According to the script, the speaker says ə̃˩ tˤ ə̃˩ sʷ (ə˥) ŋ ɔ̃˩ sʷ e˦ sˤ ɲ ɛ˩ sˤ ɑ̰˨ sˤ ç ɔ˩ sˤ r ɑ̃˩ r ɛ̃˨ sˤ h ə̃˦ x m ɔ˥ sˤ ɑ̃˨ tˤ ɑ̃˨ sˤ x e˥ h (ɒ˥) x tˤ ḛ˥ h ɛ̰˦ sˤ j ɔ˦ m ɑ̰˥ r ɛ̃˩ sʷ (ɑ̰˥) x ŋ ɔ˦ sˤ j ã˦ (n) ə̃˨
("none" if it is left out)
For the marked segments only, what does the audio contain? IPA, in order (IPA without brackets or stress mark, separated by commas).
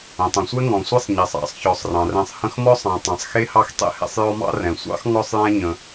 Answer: ɛ˥, ɑ˥, ɑ̰˥, ɲ